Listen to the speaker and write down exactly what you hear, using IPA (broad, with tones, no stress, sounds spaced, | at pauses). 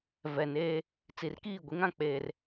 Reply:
v ɛ˨ n eː˦ | t͡s i˨ r k iː˦˨ ɡʷ i˦ ŋ ã˦ k͡p eː˦ r